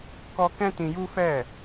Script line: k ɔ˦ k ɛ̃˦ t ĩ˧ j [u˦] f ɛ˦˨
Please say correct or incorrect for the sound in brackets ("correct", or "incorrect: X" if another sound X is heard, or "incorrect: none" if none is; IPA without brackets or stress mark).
correct